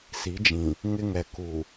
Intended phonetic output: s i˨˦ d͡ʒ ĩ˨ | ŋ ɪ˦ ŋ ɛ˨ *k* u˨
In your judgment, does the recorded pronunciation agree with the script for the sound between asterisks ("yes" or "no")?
yes